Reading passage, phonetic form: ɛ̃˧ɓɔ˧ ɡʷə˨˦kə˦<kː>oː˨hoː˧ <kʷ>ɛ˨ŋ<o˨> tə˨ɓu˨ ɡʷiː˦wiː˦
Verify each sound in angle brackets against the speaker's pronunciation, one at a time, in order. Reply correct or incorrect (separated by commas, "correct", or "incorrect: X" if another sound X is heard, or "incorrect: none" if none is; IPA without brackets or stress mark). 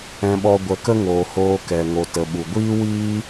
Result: incorrect: ŋ, incorrect: k, correct